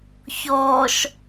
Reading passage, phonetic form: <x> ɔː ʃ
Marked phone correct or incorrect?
incorrect